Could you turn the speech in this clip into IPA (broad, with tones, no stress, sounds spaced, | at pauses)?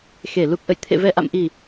x e˧˩ l u˨˩ k̚ ʔ ə̰˧˨ j t̪ʰ ḛ˧˨ v ɛ˨˩ ʔ a̰˧˨ m ʔ i˨˩